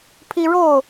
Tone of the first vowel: high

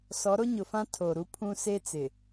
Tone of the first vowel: rising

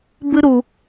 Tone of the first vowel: high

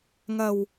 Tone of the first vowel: low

